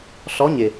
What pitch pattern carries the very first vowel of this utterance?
rising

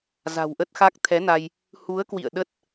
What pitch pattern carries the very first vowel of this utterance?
low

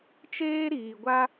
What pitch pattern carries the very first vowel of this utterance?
high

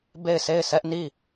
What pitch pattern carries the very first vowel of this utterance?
falling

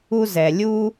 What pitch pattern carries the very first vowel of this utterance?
high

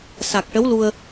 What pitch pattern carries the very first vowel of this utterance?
low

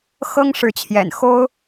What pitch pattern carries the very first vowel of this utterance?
high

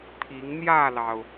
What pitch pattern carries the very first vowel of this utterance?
rising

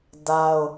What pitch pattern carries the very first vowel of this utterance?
high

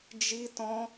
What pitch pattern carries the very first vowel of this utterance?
high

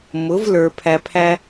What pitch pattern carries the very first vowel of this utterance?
rising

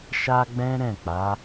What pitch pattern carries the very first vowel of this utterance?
high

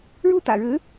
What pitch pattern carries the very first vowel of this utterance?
falling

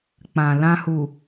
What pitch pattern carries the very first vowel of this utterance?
low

